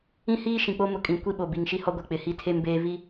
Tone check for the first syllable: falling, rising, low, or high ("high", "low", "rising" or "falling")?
high